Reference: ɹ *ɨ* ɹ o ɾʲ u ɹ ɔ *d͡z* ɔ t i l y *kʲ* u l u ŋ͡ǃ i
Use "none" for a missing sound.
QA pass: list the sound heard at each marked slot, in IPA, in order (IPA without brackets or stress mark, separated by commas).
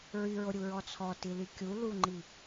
y, t͡sʰ, kʲ